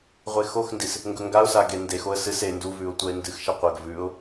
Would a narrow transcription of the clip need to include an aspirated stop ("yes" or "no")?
no